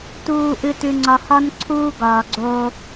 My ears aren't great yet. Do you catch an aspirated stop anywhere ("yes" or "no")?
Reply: yes